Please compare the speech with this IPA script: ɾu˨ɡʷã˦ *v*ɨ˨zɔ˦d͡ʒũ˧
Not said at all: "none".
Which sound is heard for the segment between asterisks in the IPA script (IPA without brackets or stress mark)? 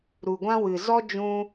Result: w